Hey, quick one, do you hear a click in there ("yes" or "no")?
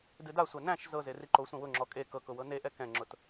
yes